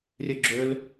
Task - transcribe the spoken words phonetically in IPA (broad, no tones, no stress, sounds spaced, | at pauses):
rʲ ø ɡ͡ǁ ø l